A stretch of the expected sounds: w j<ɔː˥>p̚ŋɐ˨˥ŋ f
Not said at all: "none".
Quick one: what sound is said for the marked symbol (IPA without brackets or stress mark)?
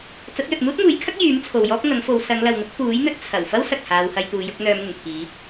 ɔː˥